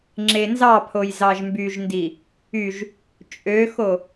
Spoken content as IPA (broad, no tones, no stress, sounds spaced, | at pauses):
ŋ͡ǁ e n z ɑ pʰ o j z ɑ ʒ m b y ʒ n d i | y ʒ | t͡ʃʼ ø x o